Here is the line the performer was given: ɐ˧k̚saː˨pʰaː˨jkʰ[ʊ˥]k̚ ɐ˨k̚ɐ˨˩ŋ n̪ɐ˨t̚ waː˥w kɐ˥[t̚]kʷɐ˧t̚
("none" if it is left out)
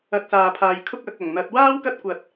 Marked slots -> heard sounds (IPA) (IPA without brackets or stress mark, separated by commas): ʊ˥, t̚